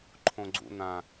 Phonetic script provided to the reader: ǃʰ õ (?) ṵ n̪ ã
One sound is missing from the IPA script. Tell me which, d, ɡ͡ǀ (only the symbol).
ɡ͡ǀ